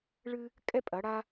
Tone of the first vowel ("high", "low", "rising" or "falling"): high